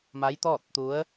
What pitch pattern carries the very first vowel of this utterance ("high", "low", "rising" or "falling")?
rising